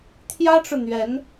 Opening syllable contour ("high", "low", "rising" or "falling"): high